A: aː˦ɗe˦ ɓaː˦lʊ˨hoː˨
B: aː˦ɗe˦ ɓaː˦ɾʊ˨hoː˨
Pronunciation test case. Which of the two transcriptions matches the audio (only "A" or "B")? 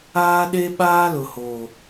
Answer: A